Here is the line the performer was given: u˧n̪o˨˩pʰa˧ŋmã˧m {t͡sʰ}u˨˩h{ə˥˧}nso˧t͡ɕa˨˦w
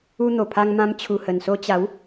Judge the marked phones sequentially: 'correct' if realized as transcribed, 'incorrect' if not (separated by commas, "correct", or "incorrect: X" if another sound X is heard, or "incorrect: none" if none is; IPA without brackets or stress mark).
incorrect: t͡ɕʰ, incorrect: ə˨˩